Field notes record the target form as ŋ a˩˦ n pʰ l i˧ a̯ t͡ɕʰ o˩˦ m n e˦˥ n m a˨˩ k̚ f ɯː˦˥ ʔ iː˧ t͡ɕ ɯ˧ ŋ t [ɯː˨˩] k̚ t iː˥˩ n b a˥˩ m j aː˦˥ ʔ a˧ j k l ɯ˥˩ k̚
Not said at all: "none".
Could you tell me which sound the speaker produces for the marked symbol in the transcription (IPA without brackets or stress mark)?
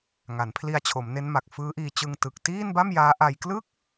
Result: ɯ˨˩